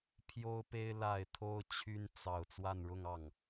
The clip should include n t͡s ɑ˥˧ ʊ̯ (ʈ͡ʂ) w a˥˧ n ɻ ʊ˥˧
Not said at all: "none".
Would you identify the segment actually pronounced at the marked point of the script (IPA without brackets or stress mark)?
t͡s